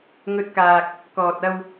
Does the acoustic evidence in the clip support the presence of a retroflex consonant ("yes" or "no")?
no